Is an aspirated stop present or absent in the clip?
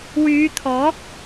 present